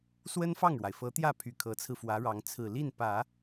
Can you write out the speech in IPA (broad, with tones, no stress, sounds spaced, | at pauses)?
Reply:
s w ə˥ n f ɑ˥˩ ŋ ɻ w a˩ ɪ̯ f ɤ˧˥ t̪ j ä˥˩ pʰ y˨˩ kʰ ɤ˧˥ t͡sʰ ɹ̩˧ f w ä˧˥ ɻ ɑ˧˥ ŋ t͡sʰ ɹ̩˨˩ l i˥˩ n p ä˨˩˦